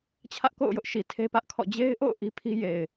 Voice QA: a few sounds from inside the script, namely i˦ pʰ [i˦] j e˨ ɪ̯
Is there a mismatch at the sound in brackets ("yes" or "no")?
no